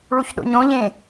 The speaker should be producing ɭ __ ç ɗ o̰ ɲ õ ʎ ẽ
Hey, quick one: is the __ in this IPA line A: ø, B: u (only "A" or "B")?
B